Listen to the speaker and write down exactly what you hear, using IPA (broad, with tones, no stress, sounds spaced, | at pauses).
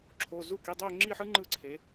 ǁʰ o˩˧˩ z u˥˩ k i˩˧˩ dˤ ø˥˧ ŋ͡ǁ i˥˧ ħ ɯ˥ ŋ͡ǃ ɯ˥˧ ǀʰ e˩˧